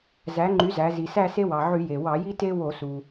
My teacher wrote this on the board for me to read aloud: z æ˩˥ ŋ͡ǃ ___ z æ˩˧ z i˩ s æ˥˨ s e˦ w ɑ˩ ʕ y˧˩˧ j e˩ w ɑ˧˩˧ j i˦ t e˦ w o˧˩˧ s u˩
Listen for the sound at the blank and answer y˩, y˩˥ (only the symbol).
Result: y˩˥